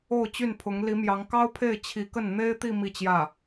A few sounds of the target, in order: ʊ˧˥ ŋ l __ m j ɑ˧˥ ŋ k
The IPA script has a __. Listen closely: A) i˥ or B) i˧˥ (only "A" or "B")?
B